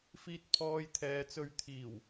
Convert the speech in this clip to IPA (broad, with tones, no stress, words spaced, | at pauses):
fiː˧t̚pʰɔː˧jt̪ʰɛː˨t͡sɵ˧ɥ t̪ʰiː˨˩w